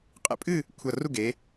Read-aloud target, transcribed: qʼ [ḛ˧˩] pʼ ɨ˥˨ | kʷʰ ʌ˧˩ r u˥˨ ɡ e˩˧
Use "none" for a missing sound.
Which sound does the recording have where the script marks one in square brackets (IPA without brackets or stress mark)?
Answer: ḛ˧˩